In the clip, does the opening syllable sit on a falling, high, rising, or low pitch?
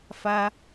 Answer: high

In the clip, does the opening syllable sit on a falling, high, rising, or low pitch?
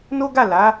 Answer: high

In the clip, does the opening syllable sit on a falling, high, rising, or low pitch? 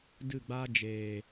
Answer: falling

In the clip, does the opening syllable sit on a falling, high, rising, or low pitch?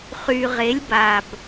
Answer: low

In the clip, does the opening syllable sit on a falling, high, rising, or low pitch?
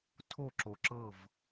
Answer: falling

